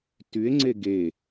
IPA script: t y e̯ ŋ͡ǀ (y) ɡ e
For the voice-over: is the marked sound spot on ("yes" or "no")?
no